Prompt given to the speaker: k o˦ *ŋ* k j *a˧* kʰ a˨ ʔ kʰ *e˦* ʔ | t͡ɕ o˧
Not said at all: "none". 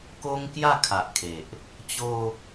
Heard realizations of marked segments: ŋ, a˥˧, e˨

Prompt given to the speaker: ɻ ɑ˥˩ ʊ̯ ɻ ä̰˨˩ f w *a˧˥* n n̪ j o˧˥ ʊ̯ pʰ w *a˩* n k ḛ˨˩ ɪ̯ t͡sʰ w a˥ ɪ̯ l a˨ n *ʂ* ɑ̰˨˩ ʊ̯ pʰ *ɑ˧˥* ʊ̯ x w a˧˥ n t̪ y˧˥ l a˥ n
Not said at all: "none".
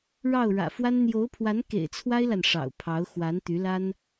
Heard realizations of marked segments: a˥, a˧˥, ʂ, ɑ˧˥

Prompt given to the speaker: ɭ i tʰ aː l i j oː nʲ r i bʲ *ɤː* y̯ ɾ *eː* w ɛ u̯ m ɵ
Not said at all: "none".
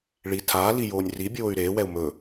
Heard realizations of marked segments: oː, eː

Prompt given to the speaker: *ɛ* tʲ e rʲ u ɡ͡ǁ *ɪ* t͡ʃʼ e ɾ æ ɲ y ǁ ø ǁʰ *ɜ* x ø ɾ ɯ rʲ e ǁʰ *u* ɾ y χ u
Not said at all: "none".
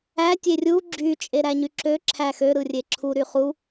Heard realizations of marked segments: æ, y, æ, u

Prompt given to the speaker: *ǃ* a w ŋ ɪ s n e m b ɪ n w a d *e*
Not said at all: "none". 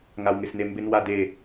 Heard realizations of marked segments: ŋ, e

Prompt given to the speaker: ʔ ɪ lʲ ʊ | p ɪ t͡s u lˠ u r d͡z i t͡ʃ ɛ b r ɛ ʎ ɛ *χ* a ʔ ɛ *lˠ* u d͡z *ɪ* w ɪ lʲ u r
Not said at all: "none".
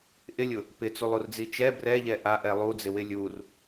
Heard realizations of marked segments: ʔ, lˠ, ɪ

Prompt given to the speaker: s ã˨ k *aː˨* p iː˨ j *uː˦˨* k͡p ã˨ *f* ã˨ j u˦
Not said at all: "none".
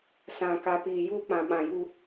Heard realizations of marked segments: a˨, uː˦, ɓ

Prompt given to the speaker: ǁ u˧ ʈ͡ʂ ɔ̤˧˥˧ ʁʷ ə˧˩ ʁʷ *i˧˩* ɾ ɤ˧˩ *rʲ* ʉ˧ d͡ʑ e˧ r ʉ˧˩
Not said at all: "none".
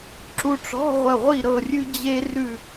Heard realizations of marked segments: i˧˩, rʲ

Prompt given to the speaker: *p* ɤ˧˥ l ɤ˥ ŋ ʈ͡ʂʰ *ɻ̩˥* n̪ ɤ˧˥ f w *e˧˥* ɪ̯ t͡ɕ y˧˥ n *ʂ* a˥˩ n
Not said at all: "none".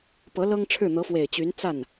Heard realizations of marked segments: p, ɻ̩˥˩, e˨˩, t͡s

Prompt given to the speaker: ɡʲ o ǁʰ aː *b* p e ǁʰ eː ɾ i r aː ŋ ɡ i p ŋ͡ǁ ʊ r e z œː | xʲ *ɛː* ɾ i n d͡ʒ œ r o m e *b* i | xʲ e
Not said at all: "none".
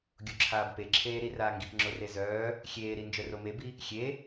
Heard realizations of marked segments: b, eː, b

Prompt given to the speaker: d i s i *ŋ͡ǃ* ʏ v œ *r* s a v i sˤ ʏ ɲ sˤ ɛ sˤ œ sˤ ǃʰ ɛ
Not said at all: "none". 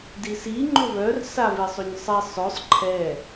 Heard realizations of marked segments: ŋ͡ǃ, r

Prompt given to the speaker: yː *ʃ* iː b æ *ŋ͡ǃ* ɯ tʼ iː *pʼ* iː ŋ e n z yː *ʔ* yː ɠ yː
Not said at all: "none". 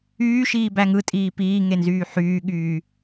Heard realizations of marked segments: ʃ, ŋ, p, ħ

